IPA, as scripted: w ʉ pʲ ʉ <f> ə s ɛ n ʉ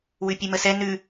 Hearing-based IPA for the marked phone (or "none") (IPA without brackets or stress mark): m